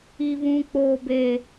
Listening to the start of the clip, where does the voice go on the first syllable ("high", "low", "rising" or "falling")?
high